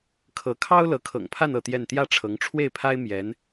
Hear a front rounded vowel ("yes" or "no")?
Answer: no